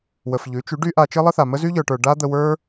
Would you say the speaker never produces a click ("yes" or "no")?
yes